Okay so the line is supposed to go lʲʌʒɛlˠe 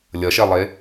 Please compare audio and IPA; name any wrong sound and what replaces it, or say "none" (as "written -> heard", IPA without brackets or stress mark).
ʒ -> ʃ